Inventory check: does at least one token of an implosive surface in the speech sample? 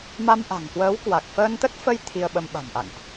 yes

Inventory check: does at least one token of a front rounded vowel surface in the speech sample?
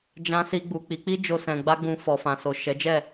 no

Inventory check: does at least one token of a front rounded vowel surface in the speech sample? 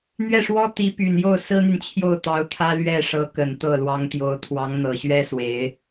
yes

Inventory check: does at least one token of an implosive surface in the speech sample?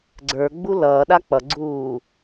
yes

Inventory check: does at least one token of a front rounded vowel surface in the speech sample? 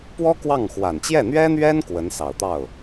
no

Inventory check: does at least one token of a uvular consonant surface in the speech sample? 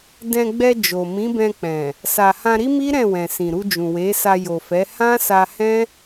no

